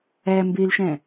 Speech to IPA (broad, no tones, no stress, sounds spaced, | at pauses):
æ m b e l ʃ æ̃